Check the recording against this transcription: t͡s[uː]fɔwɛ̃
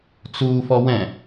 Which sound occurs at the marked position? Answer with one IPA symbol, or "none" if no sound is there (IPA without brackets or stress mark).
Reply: uː